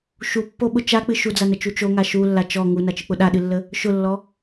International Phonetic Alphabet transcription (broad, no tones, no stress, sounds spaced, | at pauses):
ʃ u pː o ɓ ʊ t͡ʃ a k͡p ɨ ʃ u d͡z a n ə t͡ʃ u t͡ʃ o ŋ a ʃ u lː a t͡ʃ ɔ ŋ u n a t͡ʃ ɨ k͡p ʊ ɗ a ɗ ɨ lː ə | ʃ ʊ lː ɔ